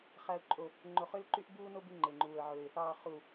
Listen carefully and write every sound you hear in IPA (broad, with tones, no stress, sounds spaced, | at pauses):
χ æ˨ ʊ̯ ǃʼ o˨ | ŋ͡ǃ o˨ χ ø˧ l ǃ y˧ ʔ b uː˧ n o˧ b y˨ ŋ͡ǃ e˨ ŋ͡ǃ uː˨ ə̯ ʕ øː˨ ɪ̯ θ ɑː˨ χ u˨